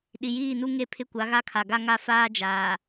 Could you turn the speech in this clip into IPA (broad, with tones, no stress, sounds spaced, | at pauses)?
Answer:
ɗ i˨ j iː˦˨ n u˦ ŋ e˦˨ pʰ ɪ˦ kʷ a˨˦ ɣ a˦ kʰ a˨ ɡ a˦ ŋ a˦ f aː˦ d͡ʒ aː˨